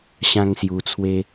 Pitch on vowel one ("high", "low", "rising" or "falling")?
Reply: high